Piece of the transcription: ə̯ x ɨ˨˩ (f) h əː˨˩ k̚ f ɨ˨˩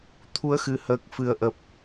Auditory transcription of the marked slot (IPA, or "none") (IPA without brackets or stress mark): none